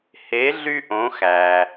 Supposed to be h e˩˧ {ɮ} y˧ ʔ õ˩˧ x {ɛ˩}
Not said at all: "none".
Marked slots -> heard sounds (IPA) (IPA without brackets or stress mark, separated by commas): ɮ, æ˩